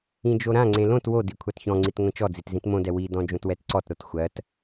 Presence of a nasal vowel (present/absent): present